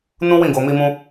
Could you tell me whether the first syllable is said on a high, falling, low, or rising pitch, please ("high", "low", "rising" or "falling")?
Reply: high